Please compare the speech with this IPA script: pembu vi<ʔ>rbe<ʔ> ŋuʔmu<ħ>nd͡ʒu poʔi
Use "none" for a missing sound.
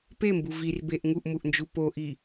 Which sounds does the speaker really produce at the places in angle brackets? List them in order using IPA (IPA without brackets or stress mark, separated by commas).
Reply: none, ʔ, ʔ